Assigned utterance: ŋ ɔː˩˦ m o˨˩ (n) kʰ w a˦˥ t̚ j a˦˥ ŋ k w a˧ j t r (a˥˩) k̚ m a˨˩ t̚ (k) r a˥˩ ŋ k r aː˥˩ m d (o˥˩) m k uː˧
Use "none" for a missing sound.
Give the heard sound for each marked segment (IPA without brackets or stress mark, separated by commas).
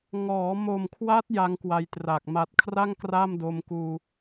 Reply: m, a˨˩, kʰ, o˧